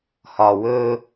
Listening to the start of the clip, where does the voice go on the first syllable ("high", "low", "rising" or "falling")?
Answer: low